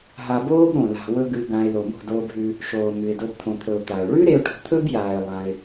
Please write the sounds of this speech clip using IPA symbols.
ɦ a˧ b oː˦ b ɾ õ˨ l a̤˨ w ɵ˧ ɡ ʉ˧ ɡ ã˧ ɪ̯ l o˨ m o̤˦˨ d oː˧ b ɦ ʉ˧ | ʃ oː˨ m ʉ˨ ɪ̯ d o˧ b t̪ʰ õ˨ t̪ʰ ɵ˨ ʊ̯ t̪ a˨ ʊ̯ ɭ ʉ˦ ɾ e˧ ʊ̯ ʈ o̤˧ t̪ʰ ɵ˦ b j aː˨ ɪ̯ lˠ ã˧ ɪ̯

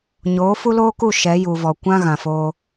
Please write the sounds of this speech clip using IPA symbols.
ɲ oː˨˦ f u˦ l oː˦ k u˦˨ ʃ ɛ˨˦ j u˨ v ɔ˨ kʷ ã˦ ɣ ã˨ f oː˧

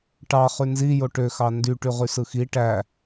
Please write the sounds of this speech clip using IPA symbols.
ʈ ɑ χ y n z i j o ʈ ø x ɑ n d y ʈ y ʁ y s ɯ x i ʈ æ

